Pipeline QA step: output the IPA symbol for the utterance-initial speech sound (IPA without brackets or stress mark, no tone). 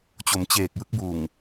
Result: t͡ɕ